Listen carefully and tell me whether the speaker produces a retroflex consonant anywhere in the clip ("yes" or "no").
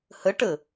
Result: yes